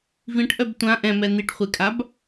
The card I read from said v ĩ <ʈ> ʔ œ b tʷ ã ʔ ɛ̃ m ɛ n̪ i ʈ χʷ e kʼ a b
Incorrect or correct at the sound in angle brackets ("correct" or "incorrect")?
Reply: correct